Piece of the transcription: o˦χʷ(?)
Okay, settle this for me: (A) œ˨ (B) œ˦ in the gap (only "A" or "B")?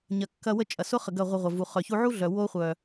A